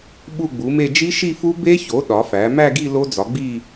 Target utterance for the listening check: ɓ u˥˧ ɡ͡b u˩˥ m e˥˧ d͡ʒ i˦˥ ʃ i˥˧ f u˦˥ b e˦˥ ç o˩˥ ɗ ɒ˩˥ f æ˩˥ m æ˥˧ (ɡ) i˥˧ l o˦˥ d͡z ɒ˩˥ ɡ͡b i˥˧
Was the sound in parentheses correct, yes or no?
yes